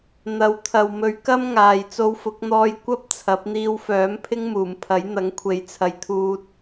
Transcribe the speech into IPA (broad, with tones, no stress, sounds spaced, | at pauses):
n̪ ɐ˨˧ w t̪ʰ ɐ˨ w m ɵ˨˥ ɥ k ɐ˥ m ŋ aː˨ j t͡s o˧ w f ʊ˨˥ k̚ n̪ ɔː˧ j kʷ ɐ˥ p̚ t͡sʰ ɐ˨˥ p̚ n̪ iː˧ w f œː˨˥ m pʰ ɪ˥ ŋ m uː˨˩ m pʰ ɐ˨˥ j n̪ ɐ˨˥ ŋ kʷʰ e˨ j t͡sʰ ɐ˨ j t̪ʰ uː˧ t̚